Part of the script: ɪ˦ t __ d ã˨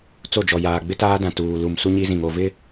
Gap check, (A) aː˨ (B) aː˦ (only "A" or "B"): B